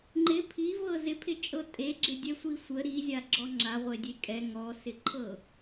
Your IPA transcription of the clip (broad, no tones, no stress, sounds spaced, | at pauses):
ŋ͡ǃ ɪ pʰ i v ɤ z ɪ pʰ ɪ t͡ʃʼ ɤ tʼ e ɡ͡ǁ ɪ dʲ ɛ sʷ i sʷ ə ɾ i zʲ a ɡ͡ǁ ɔ ŋ͡ǁ a ʁʷ e dʲ e kʼ ɛ ŋ ɔ s ɪ ǃʰ ɤ